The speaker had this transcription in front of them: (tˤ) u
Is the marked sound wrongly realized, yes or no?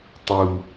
no